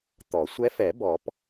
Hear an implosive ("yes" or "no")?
no